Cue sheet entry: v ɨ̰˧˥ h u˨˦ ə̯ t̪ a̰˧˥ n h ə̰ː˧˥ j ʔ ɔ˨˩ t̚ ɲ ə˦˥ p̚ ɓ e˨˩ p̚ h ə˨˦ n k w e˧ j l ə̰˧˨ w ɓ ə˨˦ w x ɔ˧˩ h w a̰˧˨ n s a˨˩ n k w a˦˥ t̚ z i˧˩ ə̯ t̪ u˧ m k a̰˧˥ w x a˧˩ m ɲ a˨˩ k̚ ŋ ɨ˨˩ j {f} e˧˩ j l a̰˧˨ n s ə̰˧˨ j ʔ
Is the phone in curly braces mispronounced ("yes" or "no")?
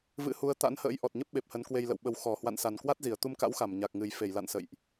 no